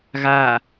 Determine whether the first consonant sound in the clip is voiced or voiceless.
voiced